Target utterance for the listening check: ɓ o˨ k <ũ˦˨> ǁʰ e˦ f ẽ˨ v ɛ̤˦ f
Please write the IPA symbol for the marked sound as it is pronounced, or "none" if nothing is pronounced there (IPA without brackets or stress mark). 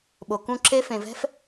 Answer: ũ˦˨